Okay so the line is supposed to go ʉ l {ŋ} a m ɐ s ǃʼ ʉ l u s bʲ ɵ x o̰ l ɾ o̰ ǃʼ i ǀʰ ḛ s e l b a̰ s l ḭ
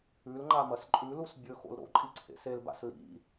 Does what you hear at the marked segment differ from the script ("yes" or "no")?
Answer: yes